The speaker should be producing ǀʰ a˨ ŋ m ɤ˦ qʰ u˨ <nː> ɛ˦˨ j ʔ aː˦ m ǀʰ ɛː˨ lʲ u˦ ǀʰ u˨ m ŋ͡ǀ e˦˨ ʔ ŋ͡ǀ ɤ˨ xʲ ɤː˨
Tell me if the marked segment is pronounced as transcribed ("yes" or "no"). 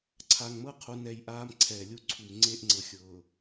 no